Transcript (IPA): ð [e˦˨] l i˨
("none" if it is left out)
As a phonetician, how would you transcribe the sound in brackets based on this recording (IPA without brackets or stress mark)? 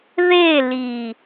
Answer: e˦˨